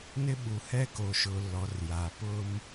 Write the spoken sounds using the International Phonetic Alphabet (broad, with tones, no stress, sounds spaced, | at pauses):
n ɪ˦ ɓ u˨ h ɛ˦ k o˨ ʃ ʊ˨ l ɔ˨˦ r j a˨ p ʊ˦ m